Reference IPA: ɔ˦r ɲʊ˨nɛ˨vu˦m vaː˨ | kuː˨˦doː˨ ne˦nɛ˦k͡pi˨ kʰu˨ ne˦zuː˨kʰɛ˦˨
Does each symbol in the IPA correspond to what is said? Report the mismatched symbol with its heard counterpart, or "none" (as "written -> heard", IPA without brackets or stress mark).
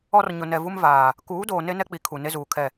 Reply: none